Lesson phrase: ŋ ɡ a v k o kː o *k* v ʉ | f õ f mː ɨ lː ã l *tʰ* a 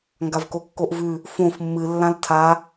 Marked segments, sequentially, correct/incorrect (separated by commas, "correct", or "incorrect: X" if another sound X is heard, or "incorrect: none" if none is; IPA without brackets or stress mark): incorrect: ʔ, correct